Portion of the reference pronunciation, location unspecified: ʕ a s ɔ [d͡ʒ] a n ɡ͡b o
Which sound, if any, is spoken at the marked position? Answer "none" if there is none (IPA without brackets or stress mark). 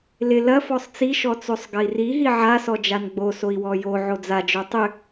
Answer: d͡ʒ